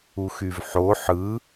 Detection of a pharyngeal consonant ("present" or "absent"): present